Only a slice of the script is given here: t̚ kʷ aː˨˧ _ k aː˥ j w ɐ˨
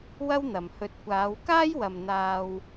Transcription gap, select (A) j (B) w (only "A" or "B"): B